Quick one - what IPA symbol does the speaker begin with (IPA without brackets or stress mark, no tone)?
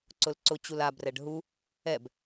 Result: ǀ